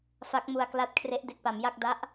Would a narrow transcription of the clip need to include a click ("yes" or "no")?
no